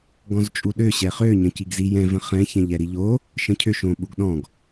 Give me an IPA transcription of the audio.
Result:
ɡ ɔ̃ z t͡ʃʼ u ɗ ø ɕ ɛ χ ø ɲ ə̃ c i ɡ z i j ɛ̃ v ə̃ χ ɛ̃ ç ɛ̃ ʎ ɛ ɾ i ʎ o | ʃ ə̃ cʰ ø ʃ õ ɓ u ɡ ɗ ɔ̃ ɡ

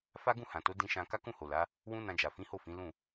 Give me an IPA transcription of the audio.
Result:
f a˦ ɡ ũ˦˨ h ã˨ t o˨˦ d ĩ˧ ʃ ã˧ k a˦ k ũ˦˨ h o˨ l a˨˦ | w ũ˦ n ã˧ d͡ʒ a˨ f ĩ˨˦ h o˦˨ f ĩ˨˦ l ũ˦˨

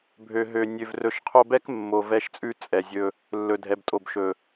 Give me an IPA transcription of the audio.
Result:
bʱ ø˨ ɦ ø˨ nʲ ø˨ v r ɵ˨ ʃ qʰ o˧ b ɛ˦ k mː o˨ v ɛ˧ ʃ t͡sʼ ʉ˦ t͡sʼ ɛ˨ zʲ ɵ˧ | lː ɵ˨ dʱ ɛ˨ b tʼ o˨ b ʃ ɵ˨

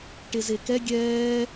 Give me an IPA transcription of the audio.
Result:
ʈ e z e k ɛ ɡʲ ɛː

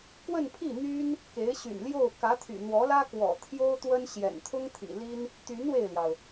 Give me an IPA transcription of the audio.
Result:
k w ə˥˧ n pʰ i˥˩ n̪ y˥ n | k e˧˥ ɪ̯ ɕ y̰˨˩ n l j o˥˩ ʊ̯ k ä˧˥ t̪ʰ y̰˨˩ n̪ w ɔ˧˥ l ä˥ k w ɔ̰˨˩ t̪ʰ j o˥ ʊ̯ t̪ w ə˥ n ɕ j ɛ̰˨˩ n t̪ʰ ʊ˥ ŋ t̪ʰ ḭ˨˩ l i˥ n | t̪ y˧˥ n w e˥˩ ɪ̯ l j ɑ˩ ʊ̯

